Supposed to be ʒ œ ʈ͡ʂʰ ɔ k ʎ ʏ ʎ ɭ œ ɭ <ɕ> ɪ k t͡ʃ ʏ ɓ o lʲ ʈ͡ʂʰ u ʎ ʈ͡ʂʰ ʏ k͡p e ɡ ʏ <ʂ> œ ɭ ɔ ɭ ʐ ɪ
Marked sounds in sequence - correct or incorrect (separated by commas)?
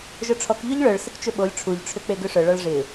incorrect, correct